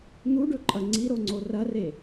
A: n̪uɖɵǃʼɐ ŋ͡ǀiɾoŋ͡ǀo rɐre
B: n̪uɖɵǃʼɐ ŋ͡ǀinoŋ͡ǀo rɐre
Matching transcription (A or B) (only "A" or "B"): A